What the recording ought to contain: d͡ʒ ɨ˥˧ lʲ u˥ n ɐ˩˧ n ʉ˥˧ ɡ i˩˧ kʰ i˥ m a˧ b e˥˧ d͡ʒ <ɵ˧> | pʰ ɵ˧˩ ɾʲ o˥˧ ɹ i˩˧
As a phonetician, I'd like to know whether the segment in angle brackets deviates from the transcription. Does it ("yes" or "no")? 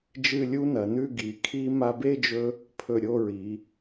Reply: no